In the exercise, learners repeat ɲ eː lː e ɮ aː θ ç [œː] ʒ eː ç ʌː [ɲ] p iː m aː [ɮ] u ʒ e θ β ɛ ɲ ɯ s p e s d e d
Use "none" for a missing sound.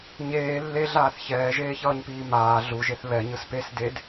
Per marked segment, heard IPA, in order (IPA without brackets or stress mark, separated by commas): ɛː, ɲ, ɮ